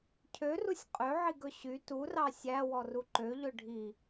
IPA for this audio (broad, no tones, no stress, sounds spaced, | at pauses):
cʰ ø r u sʲ qʼ ø ʕ i ɡ ɵ ɕ y t u r ɑ sʲ æ w ɔ r u ǃ ø ʎ ɵ ɖʱ i